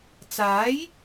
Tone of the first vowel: rising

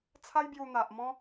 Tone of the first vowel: high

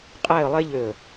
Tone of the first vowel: falling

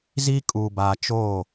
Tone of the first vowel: high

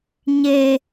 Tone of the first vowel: high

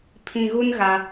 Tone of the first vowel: low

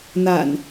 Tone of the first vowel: low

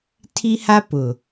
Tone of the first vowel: high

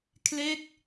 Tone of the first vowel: falling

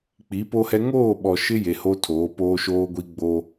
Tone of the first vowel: rising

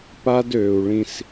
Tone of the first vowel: high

